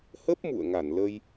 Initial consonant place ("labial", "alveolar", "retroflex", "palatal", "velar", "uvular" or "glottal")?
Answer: glottal